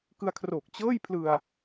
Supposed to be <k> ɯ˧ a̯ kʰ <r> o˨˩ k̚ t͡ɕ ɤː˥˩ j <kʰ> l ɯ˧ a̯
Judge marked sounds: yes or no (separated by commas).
yes, yes, no